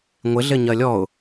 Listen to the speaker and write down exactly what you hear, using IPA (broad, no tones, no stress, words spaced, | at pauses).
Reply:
ŋʷɪ ɮɪɲɜlʲɔʊ̯